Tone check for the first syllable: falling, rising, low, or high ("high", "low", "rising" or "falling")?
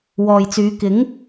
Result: low